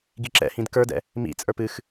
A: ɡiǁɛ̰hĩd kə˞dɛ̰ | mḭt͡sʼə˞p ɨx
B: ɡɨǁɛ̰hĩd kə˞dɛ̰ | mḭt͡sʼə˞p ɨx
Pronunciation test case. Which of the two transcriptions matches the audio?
A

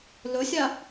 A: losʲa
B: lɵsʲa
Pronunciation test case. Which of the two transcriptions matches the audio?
B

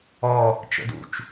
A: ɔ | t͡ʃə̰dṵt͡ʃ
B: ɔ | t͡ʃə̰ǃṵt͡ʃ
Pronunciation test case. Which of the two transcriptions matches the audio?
A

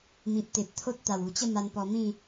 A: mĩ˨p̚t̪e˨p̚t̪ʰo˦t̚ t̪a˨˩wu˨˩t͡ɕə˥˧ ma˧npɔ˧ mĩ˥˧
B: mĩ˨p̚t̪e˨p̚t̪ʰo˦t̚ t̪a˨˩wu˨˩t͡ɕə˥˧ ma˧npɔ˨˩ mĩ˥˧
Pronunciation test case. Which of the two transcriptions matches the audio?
A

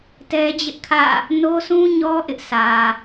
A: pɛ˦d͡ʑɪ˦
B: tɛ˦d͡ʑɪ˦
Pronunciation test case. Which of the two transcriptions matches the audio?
B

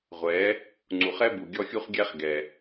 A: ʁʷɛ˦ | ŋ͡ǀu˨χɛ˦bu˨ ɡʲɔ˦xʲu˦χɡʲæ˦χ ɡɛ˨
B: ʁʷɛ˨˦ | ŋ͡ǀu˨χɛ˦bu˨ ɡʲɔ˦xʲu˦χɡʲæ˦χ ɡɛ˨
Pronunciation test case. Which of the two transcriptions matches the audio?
B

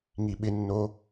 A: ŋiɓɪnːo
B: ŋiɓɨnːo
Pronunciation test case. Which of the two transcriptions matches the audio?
A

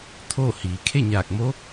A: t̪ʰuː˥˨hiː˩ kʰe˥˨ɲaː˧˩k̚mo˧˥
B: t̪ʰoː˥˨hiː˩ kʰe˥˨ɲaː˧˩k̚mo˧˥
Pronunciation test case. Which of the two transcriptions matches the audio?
B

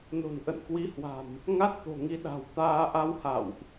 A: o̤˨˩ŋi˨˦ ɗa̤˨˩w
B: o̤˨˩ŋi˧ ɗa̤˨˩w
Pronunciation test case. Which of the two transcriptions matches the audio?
B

